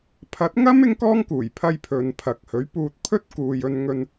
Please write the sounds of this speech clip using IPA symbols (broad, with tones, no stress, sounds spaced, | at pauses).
pʰ ɐ˨˥ t̚ ŋ ɐ˥ m ɪ˥ ŋ k ɔː˥ ŋ k uː˨˩ j pʰ ɐ˧ j pʰ ɵ˨ n pʰ ɐ˨˥ k̚ h ɵ˨˥ ɥ p uː˧ t̚ pʰ ɵ˥ t̚ k uː˧ j ɵ˧ n ŋ ɵ˧ n